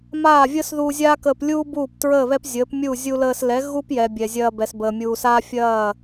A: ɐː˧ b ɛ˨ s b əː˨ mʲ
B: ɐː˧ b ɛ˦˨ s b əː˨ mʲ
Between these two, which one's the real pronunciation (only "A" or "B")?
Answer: A